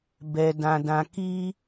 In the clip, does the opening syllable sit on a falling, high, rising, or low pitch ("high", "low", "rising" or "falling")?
high